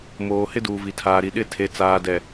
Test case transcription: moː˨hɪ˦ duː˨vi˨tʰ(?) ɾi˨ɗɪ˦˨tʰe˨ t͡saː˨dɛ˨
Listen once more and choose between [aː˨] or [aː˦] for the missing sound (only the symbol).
aː˨